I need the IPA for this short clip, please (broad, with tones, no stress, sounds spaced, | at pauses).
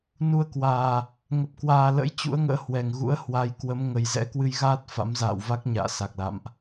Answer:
n u˧ ə̯ k w aː˨˩ | ŋ ə˨˩ p̚ k w aː˨˩ l ə̰˧˥ j t͡ɕ ṵ˧˥ ə̯ ŋ ə̰ː˧˥ h w ɛ˨˩ ŋ ɣ ṵ˧˥ ə̯ h w a˨˦ j k w ə˨˦ m ŋ ə˨˩ j z ɛ̰˧˥ k w ɨ˧ j ɣ aː˦˥ t̚ f a̰˧˥ m z a̰ː˧˨ w v a˦˥ k̚ ɲ a̰ː˧˨ s a˨˩ k̚ l a̰˧˨ m ʔ